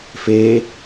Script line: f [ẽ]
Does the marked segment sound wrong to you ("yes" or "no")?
yes